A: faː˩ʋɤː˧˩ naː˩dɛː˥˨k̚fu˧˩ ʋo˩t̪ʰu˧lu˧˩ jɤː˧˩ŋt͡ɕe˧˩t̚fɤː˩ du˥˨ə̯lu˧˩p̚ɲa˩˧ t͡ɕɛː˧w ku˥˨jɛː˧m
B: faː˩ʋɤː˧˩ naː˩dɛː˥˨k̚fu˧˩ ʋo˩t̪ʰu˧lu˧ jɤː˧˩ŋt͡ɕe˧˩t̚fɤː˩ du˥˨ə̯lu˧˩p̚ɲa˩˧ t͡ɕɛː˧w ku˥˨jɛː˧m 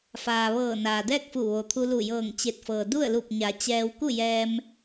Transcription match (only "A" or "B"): A